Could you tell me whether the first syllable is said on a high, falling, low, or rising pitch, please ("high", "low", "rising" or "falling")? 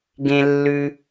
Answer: high